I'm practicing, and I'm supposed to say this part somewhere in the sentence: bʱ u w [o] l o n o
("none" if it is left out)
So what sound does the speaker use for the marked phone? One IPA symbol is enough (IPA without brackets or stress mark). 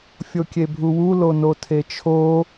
u